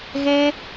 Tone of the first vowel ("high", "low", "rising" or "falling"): high